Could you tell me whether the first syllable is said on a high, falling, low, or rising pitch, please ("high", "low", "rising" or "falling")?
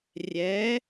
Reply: rising